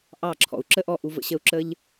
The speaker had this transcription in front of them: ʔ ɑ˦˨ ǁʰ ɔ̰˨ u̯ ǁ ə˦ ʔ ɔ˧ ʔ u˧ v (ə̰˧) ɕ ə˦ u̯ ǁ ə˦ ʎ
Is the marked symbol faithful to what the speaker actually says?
yes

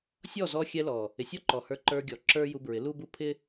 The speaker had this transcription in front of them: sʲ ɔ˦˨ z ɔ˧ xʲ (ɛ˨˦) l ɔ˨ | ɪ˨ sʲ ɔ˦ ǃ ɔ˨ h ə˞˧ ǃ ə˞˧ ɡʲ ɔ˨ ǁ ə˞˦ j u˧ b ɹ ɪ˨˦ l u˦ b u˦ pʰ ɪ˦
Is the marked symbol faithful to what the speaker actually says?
no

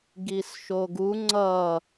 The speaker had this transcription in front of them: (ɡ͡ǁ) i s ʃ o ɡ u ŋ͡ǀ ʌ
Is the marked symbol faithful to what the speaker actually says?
no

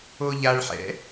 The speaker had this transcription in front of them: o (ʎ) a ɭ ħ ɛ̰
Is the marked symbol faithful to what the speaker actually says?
yes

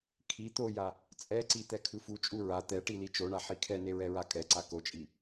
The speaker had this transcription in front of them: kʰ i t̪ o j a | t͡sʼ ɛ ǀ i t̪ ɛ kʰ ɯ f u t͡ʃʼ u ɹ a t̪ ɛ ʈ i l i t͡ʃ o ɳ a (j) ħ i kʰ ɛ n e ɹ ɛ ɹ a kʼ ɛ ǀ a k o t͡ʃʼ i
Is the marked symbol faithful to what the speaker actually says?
no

